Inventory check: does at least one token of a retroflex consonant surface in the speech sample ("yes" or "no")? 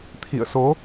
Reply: no